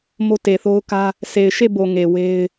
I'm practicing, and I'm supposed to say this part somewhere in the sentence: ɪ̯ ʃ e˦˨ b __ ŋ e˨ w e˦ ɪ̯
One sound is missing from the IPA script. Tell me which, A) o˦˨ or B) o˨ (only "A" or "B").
B